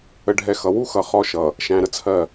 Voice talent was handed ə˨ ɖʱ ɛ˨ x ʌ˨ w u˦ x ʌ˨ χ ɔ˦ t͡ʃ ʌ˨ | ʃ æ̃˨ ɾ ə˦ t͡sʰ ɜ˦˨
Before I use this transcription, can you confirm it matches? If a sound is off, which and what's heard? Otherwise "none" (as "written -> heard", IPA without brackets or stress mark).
t͡ʃ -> ʃ